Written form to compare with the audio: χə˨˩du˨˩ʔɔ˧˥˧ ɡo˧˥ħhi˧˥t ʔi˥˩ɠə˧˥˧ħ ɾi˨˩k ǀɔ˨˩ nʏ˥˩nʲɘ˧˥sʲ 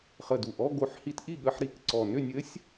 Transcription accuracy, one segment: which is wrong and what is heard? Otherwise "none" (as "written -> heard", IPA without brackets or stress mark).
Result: none